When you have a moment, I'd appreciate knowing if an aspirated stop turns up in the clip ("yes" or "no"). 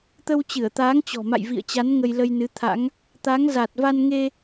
yes